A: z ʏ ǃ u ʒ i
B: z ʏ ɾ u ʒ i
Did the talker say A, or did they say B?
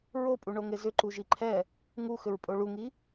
A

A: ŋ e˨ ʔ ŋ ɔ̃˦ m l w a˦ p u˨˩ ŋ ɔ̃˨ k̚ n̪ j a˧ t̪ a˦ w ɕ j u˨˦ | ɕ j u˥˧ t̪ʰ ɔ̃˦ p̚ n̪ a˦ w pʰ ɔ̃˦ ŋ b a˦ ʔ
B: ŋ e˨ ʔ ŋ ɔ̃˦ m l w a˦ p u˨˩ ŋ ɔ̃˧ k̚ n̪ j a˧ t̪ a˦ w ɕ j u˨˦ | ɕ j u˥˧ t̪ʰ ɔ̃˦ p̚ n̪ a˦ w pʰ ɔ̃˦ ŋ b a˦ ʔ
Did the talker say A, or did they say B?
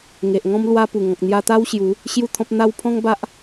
A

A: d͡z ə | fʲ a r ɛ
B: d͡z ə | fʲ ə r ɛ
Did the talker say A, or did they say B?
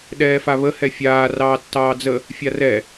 A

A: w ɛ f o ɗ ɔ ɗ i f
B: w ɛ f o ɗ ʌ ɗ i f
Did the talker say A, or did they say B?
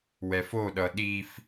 B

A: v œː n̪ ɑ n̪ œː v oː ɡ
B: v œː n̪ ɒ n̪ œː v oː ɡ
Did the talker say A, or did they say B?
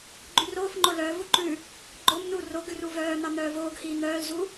A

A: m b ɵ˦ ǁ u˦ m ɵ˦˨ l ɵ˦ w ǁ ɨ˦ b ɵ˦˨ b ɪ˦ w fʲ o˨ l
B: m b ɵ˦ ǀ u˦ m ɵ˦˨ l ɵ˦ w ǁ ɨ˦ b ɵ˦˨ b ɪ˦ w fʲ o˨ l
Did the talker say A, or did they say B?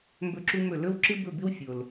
A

